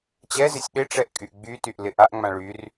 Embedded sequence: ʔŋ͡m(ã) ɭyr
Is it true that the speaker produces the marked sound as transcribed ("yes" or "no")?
yes